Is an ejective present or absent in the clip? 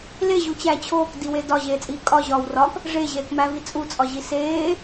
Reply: present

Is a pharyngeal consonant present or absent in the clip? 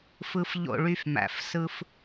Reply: absent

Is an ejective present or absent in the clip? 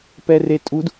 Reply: present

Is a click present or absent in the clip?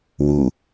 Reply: absent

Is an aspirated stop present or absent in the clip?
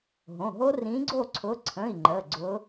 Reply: present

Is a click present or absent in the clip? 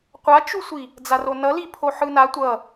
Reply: absent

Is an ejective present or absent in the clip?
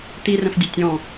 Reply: absent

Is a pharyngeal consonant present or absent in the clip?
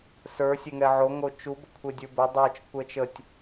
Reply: present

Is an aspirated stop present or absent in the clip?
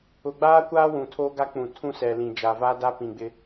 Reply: present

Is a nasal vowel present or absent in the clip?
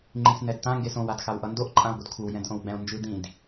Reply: present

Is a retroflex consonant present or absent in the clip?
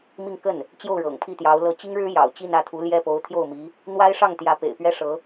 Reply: present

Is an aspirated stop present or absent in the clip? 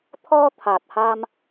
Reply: present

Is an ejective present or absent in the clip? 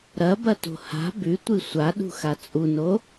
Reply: present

